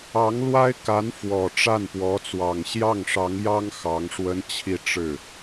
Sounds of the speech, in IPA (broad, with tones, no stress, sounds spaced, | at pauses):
ɑ˧˥ ŋ l w a˥ ɪ̯ k a˧˥ n f w ɔ˨˩ ʈ͡ʂ a˥˩ n p w ɔ˧˥ t͡s w ɑ˨˩ ŋ ɕ j ɑ˥˩ ŋ ʂ ɑ˧˥ ŋ j ɑ˥ ŋ x ɑ˧˥ ŋ ʂ w ə˥ n t͡ɕʰ i˥˧ ʈ͡ʂ ɻ̩˥˩